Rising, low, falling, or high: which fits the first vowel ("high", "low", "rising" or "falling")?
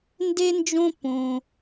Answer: high